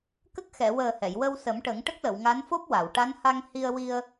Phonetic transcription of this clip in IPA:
k ə˦˥ k̚ x ɛ˨˩˨ w əː˨˩ h ɛ˨˩˨ j w ə˧ w s ə˨˩˦ m ʈ ə˨˩˦ ŋ ʈ ə˦˥ k̚ l ə˨˩˨ w ŋ a˧˥ n f o˦˥ p̚ w a˨˩˨ w ʈ a˧˥ n h a˧ ŋ h i˧ ə̯ w i˧ ə̯

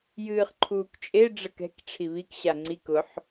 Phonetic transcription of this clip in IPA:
j ɨː χ ǃʰ uː k t͡ʃʼ e ɖ͡ʐ ə k ɛ̤ k ʈ͡ʂʰ i β i k ɕ a ŋ͡ǀ i k ʊ ħ

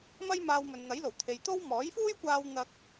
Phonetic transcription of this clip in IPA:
m ɐ˥ j m aː˧ w m ɵ˨ n n̪ ɐ˨˥ j l o˨˩ w t̪ʰ e˨ j t̪ o˥ w m ɔː˨˥ j f uː˥ j kʷ aː˧ w n̪ ɐ˧ k̚

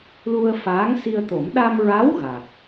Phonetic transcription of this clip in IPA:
l u˧ ə̯ f aː˧˥ ŋ s i˧ ə̯ t̪ o˨˩˦ m ɗ a˧ m ɹ a˧˥ w ɣ a˨˩ k̚

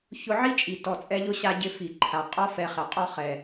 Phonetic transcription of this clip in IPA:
ç ʊ˧ ʕ i˦ t͡ʃʼ i˨ t ɔ˧ t͡sʼ ɛ˦ ʎ ʊ˦ ɕ a˧ ɟ ɪ˧ f i˨ ǃʰ a˨ qʼ ɔ˦ f ɛ˧ χ ɛ˨ qʼ ɔ˦ χ ɛ˨

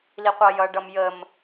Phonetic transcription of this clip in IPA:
l i qʷ ɑ j ʌ ɖ ʌ m j ə m

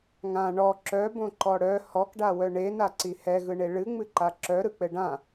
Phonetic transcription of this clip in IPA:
ŋ ã ɳ ɔ ǁ œ b õ ǃ ɔ ɽ œ h ɔ k ɖ a w œ ɳ e n a ǀ i h ɛ ɣ ɯ ɳ e ɭ ɨ ŋ͡m ɨ ǃ a ǁ œ ɾ ɯ k͡p ɘ ɖ ã

